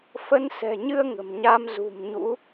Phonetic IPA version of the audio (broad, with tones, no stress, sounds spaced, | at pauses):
f ə˨˦ n s ɛ̤˨˩ ɲ ɨ˧ ə̯ ŋ ə̤˨˩ m ɲ a˧ m z ṳ˨˩ m ɲ ṵ˧˥